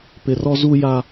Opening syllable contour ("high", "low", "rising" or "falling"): low